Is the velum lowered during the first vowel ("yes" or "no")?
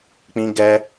yes